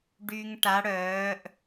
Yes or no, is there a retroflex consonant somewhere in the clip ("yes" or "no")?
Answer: yes